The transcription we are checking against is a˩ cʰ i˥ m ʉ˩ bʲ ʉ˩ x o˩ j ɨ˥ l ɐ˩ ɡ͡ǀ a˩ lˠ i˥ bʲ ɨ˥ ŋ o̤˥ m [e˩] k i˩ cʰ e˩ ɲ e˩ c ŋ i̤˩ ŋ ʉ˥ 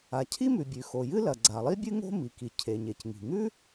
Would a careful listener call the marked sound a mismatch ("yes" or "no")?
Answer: yes